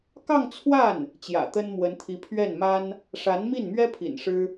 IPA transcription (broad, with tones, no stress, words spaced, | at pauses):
kɑ˥˧ŋt͡sʰwa˥˩n | t͡ɕjä̰˨˩t̪ə˥nmwə˧˥nt̪ʰi˧˥ pʰɥɛ˥˩nma˥n | ʂa˧˥nmi˥˩nmɥɛ˥pʰḭ˨˩n ʂɻ̩˥